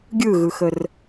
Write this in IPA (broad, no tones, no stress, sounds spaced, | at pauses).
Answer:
ɡʲ ɯ ɣ ɯ x ə r